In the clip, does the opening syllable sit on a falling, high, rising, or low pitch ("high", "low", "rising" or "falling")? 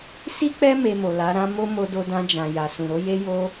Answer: high